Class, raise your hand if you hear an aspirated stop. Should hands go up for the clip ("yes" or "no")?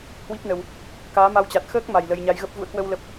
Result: no